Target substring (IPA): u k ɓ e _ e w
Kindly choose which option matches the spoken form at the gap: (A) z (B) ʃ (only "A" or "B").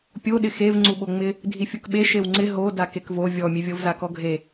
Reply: B